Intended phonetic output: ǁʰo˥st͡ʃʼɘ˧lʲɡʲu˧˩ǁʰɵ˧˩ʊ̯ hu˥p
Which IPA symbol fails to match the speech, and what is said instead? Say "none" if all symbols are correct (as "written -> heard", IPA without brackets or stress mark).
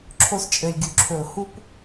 none